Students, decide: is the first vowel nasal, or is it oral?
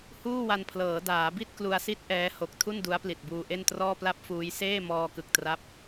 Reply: oral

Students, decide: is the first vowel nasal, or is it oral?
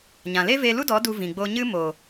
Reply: nasal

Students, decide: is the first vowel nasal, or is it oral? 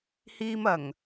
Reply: oral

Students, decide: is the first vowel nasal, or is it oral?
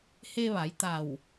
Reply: oral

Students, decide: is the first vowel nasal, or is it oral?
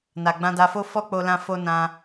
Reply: oral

